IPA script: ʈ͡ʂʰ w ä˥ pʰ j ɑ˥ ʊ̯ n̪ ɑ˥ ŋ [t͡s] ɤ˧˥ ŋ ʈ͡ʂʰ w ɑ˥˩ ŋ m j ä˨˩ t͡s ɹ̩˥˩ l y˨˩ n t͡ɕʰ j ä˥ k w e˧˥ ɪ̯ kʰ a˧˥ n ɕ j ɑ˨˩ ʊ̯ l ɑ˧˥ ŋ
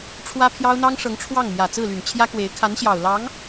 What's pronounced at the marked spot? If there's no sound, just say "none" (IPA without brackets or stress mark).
ʂ